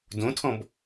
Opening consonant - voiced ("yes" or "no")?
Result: yes